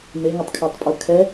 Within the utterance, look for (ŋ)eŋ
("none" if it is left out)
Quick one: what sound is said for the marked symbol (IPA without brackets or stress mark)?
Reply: m